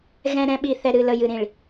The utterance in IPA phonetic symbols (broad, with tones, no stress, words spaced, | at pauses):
ɣɛ̃˨ɾɛ̃˨ ɓi˨θɛ˨ ɾɨ˨lə˨jɨ˨ ɾĩ˨ɭ